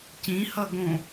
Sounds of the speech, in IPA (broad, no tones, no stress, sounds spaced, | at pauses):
c ĩ h ʌ ɡ õ